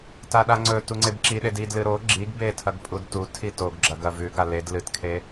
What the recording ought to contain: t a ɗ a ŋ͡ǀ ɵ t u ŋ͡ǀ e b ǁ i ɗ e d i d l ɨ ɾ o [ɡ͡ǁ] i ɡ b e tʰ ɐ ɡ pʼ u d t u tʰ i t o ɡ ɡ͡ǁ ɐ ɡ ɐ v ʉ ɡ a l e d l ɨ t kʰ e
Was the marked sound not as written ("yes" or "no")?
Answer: no